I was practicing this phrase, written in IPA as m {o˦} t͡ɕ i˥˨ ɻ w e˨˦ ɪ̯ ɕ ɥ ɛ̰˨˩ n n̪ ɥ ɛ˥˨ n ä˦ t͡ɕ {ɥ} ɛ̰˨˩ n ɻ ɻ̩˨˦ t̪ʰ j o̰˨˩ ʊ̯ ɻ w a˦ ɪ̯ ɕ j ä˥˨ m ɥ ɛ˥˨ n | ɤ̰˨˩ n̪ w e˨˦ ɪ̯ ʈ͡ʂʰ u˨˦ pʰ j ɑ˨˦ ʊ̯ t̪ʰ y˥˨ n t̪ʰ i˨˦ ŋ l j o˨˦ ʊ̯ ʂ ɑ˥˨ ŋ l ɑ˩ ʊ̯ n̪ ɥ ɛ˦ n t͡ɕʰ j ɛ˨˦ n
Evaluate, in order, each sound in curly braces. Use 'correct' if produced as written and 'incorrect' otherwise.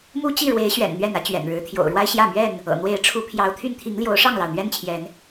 incorrect: u˦, correct

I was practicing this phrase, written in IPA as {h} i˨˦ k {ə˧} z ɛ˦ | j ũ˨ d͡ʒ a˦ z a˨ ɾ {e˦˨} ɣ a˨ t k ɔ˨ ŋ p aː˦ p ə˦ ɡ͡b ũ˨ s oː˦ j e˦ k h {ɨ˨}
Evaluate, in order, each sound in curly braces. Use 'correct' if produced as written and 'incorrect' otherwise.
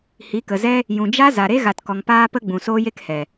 correct, incorrect: ə˨, incorrect: e˦, incorrect: ɛ˨

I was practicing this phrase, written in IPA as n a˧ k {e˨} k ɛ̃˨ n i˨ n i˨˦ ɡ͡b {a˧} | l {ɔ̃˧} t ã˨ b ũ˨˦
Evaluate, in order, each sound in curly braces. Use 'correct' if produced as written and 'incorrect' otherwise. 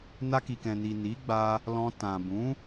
incorrect: i˨, correct, correct

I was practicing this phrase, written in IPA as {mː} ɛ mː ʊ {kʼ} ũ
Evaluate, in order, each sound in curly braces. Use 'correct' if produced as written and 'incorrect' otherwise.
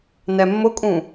incorrect: n, correct

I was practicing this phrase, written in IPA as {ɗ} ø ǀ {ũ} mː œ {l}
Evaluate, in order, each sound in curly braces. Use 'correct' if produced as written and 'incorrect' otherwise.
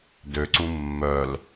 incorrect: d, correct, correct

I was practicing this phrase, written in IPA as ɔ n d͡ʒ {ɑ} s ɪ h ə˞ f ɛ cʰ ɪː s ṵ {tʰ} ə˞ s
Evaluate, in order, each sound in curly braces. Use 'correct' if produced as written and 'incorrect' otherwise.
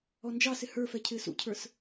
correct, incorrect: cʰ

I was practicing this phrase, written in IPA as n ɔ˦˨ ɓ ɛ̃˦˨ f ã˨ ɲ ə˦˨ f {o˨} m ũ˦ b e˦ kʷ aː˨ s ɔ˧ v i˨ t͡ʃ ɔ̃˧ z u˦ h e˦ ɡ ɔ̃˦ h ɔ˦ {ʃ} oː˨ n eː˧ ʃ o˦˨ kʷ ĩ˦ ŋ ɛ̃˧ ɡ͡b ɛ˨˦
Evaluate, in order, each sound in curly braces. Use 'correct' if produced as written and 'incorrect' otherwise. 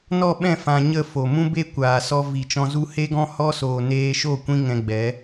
correct, incorrect: s

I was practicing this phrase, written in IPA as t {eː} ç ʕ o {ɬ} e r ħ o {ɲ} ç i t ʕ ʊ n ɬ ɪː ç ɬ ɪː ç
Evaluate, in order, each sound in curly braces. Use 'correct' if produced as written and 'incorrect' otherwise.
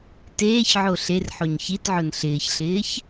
correct, correct, correct

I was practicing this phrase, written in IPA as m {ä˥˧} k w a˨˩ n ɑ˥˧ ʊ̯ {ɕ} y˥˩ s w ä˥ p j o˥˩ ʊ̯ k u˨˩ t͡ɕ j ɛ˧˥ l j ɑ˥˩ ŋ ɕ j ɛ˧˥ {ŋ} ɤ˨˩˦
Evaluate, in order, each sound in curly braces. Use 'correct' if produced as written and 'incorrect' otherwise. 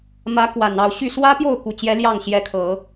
incorrect: ä˧˥, correct, incorrect: kʰ

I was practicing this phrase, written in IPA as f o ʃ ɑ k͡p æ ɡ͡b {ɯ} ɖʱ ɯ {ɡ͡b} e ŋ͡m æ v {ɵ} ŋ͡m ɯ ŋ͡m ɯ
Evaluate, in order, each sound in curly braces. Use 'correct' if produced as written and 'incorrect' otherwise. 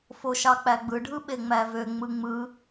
correct, incorrect: ɓ, incorrect: ø

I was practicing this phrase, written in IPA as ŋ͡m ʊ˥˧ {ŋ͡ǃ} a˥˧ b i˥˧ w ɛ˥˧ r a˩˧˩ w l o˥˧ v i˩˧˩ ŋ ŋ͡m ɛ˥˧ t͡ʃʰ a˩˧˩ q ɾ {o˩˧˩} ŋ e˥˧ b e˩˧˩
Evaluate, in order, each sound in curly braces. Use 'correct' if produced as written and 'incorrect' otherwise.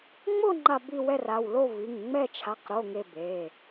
correct, correct

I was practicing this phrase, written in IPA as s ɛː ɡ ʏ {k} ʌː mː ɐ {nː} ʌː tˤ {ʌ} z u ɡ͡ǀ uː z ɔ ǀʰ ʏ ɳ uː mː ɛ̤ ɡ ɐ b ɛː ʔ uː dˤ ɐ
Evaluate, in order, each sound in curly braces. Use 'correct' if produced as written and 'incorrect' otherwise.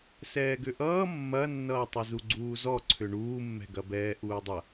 incorrect: ʔ, correct, correct

